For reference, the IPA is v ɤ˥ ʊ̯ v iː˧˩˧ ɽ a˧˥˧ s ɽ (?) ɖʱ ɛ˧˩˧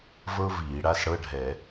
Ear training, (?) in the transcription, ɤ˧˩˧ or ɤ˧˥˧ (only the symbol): ɤ˧˥˧